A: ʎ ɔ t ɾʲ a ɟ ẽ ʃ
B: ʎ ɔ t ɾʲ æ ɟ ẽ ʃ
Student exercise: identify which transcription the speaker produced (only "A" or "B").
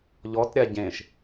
A